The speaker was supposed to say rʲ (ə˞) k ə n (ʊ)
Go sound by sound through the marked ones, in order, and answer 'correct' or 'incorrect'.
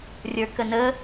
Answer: correct, incorrect

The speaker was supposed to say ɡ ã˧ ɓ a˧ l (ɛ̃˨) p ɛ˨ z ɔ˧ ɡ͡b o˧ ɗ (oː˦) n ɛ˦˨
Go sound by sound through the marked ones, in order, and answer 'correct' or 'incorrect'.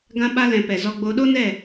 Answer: correct, incorrect

